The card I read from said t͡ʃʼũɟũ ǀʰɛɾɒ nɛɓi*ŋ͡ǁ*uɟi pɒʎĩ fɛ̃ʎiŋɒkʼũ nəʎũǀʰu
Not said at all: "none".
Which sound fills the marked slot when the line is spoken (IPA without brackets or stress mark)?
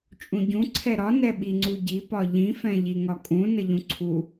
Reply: ŋ͡ǀ